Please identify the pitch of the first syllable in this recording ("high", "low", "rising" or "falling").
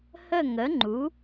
falling